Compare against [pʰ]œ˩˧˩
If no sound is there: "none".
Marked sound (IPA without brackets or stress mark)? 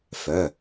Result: f